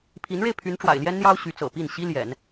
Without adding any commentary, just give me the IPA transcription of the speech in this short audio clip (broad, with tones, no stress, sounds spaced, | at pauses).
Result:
pʰ i˧˥ n ɻ e˧ ɪ̯ pʰ y˧˥ n ʈ͡ʂ w a̰˨˩ ɪ̯ l j ɛ˥ n n̪ j ɑ˥ ʊ̯ ɕ y˧˥ t͡s ɤ̰˨˩ p i˥˩ n ɕ i˥ l j ɛ̰˨˩˦ n